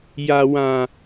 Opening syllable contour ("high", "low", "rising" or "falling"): low